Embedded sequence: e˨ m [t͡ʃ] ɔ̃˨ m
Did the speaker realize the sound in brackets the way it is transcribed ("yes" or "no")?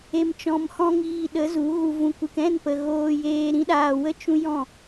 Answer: yes